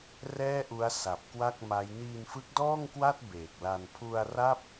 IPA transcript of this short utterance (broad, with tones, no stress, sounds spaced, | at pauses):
r ɛː˥˩ ʔ u˦˥ a̯ s a˨˩ p̚ k w a˥˩ k̚ m a˦˥ j n iː˧ n f ɯ˦˥ k̚ d ɔː˥˩ ŋ k w a˥˩ t̚ b eː˨˩ k̚ l a˧ n pʰ u˧ a̯ r a˥˩ p̚